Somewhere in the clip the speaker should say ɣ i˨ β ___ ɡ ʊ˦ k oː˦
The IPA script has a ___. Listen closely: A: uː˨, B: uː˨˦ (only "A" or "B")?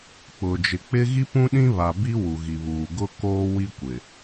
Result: A